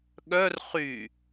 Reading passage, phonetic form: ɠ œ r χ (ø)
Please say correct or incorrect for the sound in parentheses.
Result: incorrect